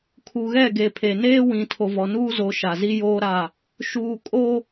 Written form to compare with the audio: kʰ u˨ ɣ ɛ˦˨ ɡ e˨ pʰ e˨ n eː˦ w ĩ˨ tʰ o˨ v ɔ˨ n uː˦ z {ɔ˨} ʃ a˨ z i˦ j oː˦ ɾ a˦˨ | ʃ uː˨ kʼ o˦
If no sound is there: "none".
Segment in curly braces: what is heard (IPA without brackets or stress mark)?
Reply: o˨